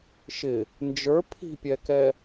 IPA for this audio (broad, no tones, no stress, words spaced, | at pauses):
ʃɪ | nd͡ʒə˞ pʰi̤pʲɛkɛ